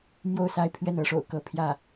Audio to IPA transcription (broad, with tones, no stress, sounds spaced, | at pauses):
m j o˥˧ ʊ̯ s a˥˧ ɪ̯ pʰ ɥ ɛ˥˩ n ɤ˧˥ ʂ o̰˨˩ ʊ̯ k ɤ˥˧ pʰ j ä˥˩